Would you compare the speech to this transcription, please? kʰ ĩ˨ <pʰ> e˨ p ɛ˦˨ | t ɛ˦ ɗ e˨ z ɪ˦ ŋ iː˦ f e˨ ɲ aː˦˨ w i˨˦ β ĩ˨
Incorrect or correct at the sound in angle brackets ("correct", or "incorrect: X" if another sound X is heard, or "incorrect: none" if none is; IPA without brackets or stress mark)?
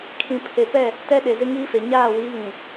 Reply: correct